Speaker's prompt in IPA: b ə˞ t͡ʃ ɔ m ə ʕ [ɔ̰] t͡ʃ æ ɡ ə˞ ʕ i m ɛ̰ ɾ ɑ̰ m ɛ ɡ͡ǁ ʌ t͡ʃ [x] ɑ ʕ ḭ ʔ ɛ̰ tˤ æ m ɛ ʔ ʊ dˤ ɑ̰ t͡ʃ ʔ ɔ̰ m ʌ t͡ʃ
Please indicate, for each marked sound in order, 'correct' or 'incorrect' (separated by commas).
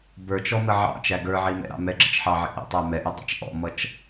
incorrect, incorrect